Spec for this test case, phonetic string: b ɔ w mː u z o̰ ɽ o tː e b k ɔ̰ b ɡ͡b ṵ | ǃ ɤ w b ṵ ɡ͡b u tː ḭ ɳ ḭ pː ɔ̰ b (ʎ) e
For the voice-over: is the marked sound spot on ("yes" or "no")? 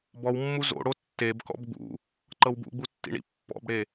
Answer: no